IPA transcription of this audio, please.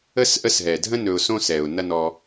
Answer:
ə˥ s ʔ ə˦ s ɦ ɛ˩ dʱ ə̃˥ n ɵ˨ ʊ̯ s õ˦ s ɛ˩ ʊ̯ n ɐ˦ n ɔ˨

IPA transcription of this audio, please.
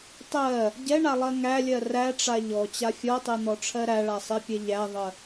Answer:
tˤ ɜ | ɟ ɛ ɳ a lˠ ɜ ŋ æ lʲ ɜ r æ ʈ͡ʂ a ʎ ɔ t͡ɕ a fʲ ɔ tˤ e n̪ ɔ ʈ͡ʂʰ ɜ ɾ æ ɭ a sˤ e pʲ ɛ ʎ æ ðˤ ə

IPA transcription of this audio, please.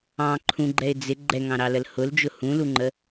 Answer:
ɑ̃ ǃʰ ũ ɡ͡ǃ ɛ ɪ̯ d͡z ɪ ɡ͡ǃ ɛ ŋ ɑ̃ ɾ ɑ l ə l h ʊ l d͡ʒ ʊ h ũ l u ŋ͡ǃ ə

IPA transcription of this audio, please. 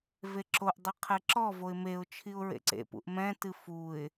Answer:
v e ǁ o ʔ dˤ ɨ qʰ ɛ ǁ ɔ v o ɪ̯ m e ʊ̯ t͡ʃʰ i ʊ̯ ɹ ḛ ǀ ḛ p ṵ ʔ m ɛ̃ t ɨ f u ɪ̯

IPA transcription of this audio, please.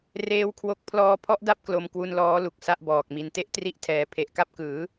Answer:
r eː˦˥ w kʰ w o˦˥ k̚ pʰ l ɔː˧ pʰ ɔ˦˥ ʔ d a˥˩ p̚ k l o˧ m k w u˧ n l ɔː˦˥ l u˨˩ k̚ s a˥˩ ʔ b ɔː˨˩ k̚ m i˧ n t e˦˥ ʔ t r i˦˥ ʔ tʰ ɛː˩˦ pʰ e˨˩ ʔ k a˥˩ p̚ k ɯː˩˦

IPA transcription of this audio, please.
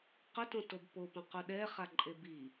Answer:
q ʊ t õ t o b p o p õ q u ɗ ɛ χ a ǃʼ e b i

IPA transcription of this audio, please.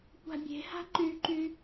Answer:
kʷ a̤ bʲ e̤ h a̤ ǃ y ǃ y

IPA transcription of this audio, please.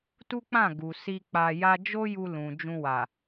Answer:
t u˦ k͡p ã˦˨ ɡ u˨ s i˧ k͡p a˧ j a˦ d͡ʒ o˦ j u˧ l ũ˨ d͡ʒ ũ˧ w a˨

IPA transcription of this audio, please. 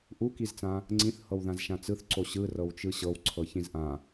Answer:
ʔ u k i z t͡s ã | ŋ͡ǀ ĩ θ h ɤ w ð ã z ʃ ã t͡s ɯ θ ǀ o ɕ ɯ r ɤ w t͡ʃ ɯ ɕ ɤ w ǀʰ ɤ ç ĩ z ʔ ã

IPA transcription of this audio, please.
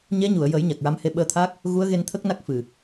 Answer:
ɲ ɛ˧˥ ɲ u˨˩˨ ə̯ j ə˨˩˦ j ɲ a˨˩ k̚ ɹ a˧˥ m h e˧ ɓ əː˧ t̪ʰ aː˦˥ k̚ | ɣ u˧˥ ə̯ ɣ e˧ n t̪ʰ ə˦˥ k̚ n a˦˥ k̚ f ɨ˨˩

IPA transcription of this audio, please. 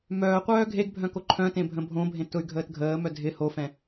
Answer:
m œː qʷ œː ɡʱ e ɡ bʱ œ̃ k o ǃʰ œ̃ t ẽ bʱ ə̃ bʱ õ bʱ ẽ t ʊ y̯ ɡʱ əː t ɡʱ əː m œ dʱ ɪ h o f ɛ̃

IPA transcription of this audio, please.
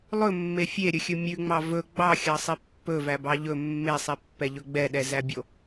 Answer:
lˠ ɵ mː e fʲ e ɾʲ ɵ xʲ ɵ mʲ ʉ ŋ͡m ɑ v ɵ ɡ͡b ɑ xʲ ɑ sˤ i pː ɵ v æ b ɑ ʎ ɵ mː e sˤ i pː ɛ ʎ ɵ ɡ͡b ɛ ɗ ɛ z æ bʲ o

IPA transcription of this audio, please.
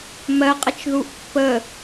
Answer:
m ɜ qʼ ə t͡ʃ ð u ʔ pː ə

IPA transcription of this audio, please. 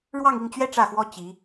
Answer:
ɻ w ɑ˥˧ ŋ i˥˩ ŋ t͡ɕ ɥ ɛ˥ ʈ͡ʂ ä˥˩ x w ɔ˥ t͡ɕ i˧˥

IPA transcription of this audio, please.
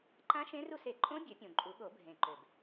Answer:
ǃ ã˦˥ ʃ ẽ˦˥ r u˥˨ s e˨˩˦ ǃʼ õ˦˥ bʲ ø˨˩˦ pʲ õ˨˩ ǃʼ u˨˩˦ ɠ o˨˩˦ bʱ ẽ˨˩ ǃ ø˨˩ b

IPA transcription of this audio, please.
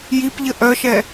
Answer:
j i p ʎ ə ʔ œ ʃ ɛ

